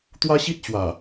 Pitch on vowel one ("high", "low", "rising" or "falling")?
high